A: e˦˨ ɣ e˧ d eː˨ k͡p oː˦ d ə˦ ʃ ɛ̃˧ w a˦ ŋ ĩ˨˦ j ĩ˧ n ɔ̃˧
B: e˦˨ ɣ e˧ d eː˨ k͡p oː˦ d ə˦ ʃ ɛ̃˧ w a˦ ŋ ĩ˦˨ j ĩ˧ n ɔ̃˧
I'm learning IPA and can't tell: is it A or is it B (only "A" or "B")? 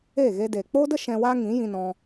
A